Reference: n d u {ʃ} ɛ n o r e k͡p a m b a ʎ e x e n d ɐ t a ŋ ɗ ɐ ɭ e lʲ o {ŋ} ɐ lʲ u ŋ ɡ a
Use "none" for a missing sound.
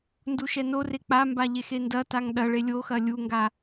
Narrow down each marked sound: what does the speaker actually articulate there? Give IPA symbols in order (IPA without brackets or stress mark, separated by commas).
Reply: ʃ, x